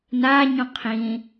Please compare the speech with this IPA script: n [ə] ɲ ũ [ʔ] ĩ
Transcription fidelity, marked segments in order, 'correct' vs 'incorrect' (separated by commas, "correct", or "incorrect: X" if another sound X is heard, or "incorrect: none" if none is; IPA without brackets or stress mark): incorrect: a, incorrect: qʰ